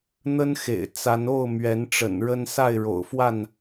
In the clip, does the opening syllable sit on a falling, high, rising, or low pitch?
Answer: high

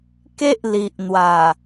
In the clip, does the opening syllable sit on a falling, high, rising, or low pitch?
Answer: high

